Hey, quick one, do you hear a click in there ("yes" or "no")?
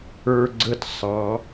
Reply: yes